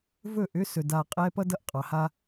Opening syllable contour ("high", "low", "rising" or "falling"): falling